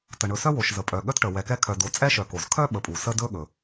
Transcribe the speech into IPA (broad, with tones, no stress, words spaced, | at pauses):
tə˩ ɳɵ˨sœ˥wo˩ʃ zə˩pʼœ˩ ɠœ˥tʈə˩ wɛ˨kɛ˦ kʰœ˨do˨ t͡sʼɛ˦ʃœ˩ ko˩zkʰœ˥ ɓə˨pʼu˩sə˥ dɵ˦ɠɵ˩